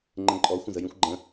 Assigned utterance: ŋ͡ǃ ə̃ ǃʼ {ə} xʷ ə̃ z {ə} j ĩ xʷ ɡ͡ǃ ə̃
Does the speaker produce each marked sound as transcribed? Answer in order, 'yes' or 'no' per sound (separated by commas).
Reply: no, yes